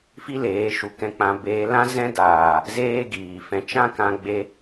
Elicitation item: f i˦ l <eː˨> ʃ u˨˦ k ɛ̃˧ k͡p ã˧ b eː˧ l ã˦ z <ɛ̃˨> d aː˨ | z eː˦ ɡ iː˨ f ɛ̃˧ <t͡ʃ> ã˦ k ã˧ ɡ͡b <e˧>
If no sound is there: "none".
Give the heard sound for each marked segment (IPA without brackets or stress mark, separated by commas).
eː˨˦, ɛ̃˦, t͡ʃ, e˧